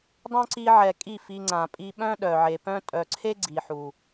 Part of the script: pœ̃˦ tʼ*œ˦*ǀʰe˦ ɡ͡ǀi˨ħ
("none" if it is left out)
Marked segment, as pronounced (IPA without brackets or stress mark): œ˨